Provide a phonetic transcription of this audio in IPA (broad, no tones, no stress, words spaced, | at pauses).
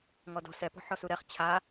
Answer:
ŋɔdɔ̤ sɛpɔ̤ ħɔsuɾɛχ t͡ɕʰa